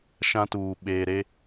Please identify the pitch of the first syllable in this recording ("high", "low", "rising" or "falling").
high